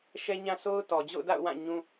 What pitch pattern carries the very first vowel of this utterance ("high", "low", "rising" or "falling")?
high